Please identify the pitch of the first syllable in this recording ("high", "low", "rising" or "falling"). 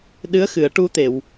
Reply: rising